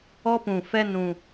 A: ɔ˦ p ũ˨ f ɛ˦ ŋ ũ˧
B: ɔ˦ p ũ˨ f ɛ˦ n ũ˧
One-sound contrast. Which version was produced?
B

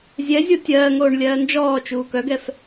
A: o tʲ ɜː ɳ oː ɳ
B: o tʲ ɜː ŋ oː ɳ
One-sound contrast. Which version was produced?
B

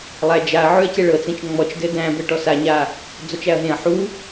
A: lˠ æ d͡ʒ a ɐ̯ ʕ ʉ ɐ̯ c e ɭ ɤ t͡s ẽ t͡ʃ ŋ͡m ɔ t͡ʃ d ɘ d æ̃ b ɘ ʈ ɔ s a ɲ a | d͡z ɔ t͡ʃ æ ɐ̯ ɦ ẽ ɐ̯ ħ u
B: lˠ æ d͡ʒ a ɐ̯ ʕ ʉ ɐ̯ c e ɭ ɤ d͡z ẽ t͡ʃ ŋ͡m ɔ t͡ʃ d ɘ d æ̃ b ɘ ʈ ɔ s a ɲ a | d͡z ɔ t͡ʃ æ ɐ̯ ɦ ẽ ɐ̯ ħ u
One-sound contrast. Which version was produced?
A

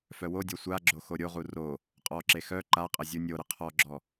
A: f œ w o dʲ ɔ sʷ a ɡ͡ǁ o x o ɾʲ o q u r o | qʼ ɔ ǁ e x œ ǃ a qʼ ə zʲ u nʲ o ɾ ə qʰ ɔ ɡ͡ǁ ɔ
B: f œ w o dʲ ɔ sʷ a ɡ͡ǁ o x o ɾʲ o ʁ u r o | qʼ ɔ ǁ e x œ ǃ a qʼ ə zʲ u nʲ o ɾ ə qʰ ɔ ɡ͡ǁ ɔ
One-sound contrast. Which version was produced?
B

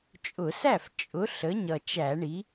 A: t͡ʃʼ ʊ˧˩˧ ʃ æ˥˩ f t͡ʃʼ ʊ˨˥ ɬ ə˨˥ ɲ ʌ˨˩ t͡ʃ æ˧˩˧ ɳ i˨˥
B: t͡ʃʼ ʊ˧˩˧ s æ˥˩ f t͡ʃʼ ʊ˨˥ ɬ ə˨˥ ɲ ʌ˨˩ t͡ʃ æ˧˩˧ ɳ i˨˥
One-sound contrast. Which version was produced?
B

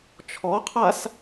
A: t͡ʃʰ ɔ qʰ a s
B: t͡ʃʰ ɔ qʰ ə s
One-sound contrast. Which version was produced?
A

